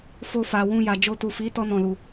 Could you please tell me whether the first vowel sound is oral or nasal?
oral